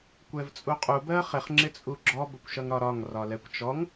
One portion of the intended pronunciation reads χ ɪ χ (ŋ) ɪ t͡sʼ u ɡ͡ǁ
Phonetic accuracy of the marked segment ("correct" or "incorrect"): incorrect